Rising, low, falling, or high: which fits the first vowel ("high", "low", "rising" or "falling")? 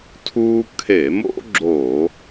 high